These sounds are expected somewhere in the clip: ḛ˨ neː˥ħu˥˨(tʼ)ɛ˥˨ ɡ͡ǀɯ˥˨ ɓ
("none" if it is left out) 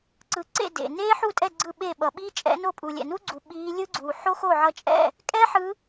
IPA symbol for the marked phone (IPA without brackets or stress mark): tʼ